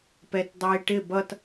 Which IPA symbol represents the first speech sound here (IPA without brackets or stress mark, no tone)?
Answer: p